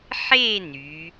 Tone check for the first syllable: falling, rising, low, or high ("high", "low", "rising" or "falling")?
falling